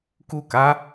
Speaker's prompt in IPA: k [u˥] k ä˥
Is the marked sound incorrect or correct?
incorrect